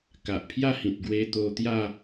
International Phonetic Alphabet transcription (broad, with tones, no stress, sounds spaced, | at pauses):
k a˨ ʔ pʰ j a˥˧ h ĩ˨ t̚ ɡ w e˧ t̪ o˧ t̪ j a˥˧